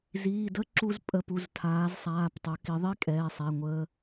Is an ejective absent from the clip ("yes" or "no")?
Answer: no